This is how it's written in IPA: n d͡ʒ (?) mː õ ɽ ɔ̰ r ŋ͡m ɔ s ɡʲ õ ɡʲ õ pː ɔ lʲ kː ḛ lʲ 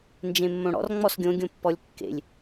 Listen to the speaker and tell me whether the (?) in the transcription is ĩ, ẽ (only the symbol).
ẽ